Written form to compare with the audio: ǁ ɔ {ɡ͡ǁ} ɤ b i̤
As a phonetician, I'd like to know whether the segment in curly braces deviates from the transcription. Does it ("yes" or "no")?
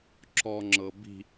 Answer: yes